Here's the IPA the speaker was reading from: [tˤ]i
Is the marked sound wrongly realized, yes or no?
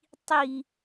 no